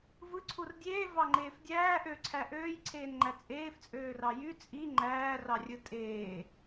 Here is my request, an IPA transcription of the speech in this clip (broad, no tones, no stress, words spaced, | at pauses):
vɯǀʰur dʲeːvɑŋ͡ǃeːf dʲæː ʔøǀʰæ ʔøːjǀʰeːnŋ͡ǃæ t͡sʼeːft͡sʼøːrɑ jy t͡sʼi ŋ͡ǃæːrɑrʲɯ tʼeː